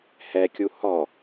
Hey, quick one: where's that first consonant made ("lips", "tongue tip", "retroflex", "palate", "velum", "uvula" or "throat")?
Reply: throat